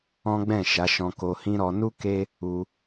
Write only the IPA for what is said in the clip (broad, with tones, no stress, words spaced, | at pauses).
ɔ̃˦ɡ͡bɛ̃˦˨ʃa˨˦ʃɔ̃˧ ko˧hĩ˦ɾɔ˧ nu˦ ke˦ | u˧